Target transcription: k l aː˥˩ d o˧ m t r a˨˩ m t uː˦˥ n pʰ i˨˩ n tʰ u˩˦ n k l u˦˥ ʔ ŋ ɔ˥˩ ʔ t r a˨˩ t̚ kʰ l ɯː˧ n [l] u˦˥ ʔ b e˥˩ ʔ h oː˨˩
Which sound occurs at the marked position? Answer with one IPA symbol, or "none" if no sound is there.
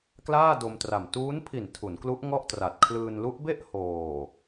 l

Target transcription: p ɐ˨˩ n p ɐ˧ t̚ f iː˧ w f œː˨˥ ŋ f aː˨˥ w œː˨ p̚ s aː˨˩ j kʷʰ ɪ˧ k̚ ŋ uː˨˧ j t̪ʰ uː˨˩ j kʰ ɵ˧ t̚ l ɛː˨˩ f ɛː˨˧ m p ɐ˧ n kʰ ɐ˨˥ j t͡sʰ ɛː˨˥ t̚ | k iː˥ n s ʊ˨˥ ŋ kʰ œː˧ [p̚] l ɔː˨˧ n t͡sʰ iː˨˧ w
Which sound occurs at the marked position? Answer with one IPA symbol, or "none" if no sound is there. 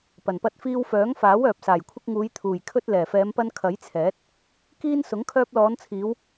p̚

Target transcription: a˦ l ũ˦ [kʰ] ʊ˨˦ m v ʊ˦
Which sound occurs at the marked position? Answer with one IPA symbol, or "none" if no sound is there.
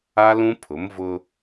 pʰ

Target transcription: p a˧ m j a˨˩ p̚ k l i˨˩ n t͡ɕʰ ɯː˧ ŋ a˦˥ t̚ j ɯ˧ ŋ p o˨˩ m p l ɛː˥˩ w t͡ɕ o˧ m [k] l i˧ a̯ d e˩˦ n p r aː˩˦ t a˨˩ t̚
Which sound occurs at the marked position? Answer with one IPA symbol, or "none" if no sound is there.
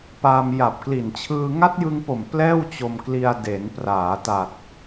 k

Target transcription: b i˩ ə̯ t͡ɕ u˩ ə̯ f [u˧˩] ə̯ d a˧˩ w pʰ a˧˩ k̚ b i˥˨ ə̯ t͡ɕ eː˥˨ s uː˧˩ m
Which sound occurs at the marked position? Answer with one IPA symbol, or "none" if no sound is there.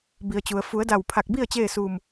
u˩˧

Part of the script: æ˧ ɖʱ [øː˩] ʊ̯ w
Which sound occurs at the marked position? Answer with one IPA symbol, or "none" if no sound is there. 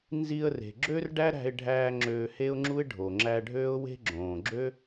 øː˥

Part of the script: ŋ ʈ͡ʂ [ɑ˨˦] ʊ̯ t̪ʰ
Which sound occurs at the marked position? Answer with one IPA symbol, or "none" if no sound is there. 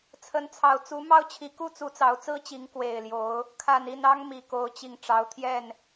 ɑ˨˦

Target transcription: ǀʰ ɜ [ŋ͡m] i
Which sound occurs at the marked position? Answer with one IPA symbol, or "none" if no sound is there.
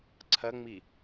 ŋ͡m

